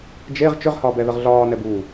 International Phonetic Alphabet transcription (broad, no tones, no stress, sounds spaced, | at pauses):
d͡ʒ e ʁ t͡ʃ ʏ ʁ h ɒː b ɛ ð ə ʁ ɮ ɒː n ɛ b uː